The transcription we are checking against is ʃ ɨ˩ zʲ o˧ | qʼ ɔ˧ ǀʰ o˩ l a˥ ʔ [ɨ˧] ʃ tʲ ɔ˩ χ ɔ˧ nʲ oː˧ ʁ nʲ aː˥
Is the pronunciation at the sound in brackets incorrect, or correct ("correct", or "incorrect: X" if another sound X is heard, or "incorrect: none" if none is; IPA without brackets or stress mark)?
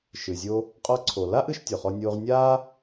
correct